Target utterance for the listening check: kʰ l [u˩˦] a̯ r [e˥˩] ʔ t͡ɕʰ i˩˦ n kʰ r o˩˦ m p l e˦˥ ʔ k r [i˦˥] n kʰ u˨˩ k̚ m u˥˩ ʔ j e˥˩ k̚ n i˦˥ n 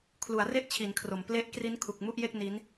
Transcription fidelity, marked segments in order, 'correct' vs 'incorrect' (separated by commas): correct, correct, correct